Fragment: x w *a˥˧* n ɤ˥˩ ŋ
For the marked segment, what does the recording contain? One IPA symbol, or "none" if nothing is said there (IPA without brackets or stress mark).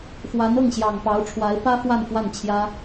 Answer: a˧˥